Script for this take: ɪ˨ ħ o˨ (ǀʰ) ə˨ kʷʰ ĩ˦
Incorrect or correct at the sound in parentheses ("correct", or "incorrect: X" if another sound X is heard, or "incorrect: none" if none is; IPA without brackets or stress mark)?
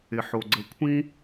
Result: incorrect: ɡ͡ǀ